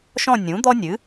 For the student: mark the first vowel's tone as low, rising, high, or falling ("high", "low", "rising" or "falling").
falling